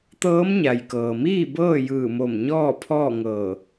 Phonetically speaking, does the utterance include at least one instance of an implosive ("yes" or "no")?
no